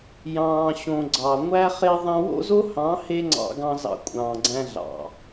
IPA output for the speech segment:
j ɑ̃ː˨ ɕ õ˨ ɡ͡ǀ ɑ˨ ŋʷ æ˦ χ e˦ ðˤ æ̃˧ w o̰˦ z o˦ h ɑ̃˨˦ h e˦ ŋ͡ǀ ɑ̰˧ ɡ ɑ̃˧ z ɑ̰˧ kʷʼ ɑ̃ː˨ ɡ͡ǀ æ̃˧ ɮ ɑ̰˨

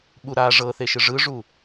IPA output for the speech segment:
ɓ u ɾ a ʐ ɤ θ e ʃ ɯ ʐ ɯ ʐ u

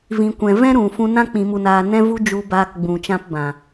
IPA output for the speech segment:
v ĩ˨ kʷ ɛ̃˨ v ɛ̃˦ ɾ ũ˨ f ũ˧ n ã˦ k͡p ĩ˨ m u˨ n aː˨ n ɛ̃˦ v u˦ d͡ʒ u˧ b aː˧ k ɡ͡b ũ˨ t͡ʃ ã˧ p b ã˨

